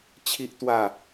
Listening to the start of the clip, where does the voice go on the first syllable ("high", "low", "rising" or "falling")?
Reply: high